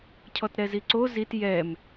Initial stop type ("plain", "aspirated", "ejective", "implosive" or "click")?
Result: aspirated